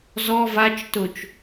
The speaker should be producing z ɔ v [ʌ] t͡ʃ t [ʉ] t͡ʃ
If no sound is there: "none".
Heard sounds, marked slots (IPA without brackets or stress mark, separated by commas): a, ʊ